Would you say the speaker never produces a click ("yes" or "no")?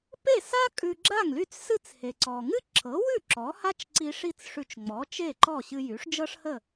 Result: no